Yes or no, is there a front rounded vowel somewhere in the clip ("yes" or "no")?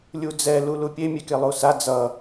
no